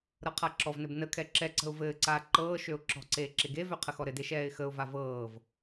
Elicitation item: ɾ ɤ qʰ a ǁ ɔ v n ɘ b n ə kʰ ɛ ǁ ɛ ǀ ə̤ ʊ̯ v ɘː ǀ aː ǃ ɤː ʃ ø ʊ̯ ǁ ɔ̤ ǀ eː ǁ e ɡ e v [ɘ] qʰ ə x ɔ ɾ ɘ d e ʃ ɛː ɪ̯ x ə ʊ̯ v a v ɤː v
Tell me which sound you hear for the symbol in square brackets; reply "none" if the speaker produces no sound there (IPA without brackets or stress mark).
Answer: ø